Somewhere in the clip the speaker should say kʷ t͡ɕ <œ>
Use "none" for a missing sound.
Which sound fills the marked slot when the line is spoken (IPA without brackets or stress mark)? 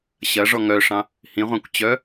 œ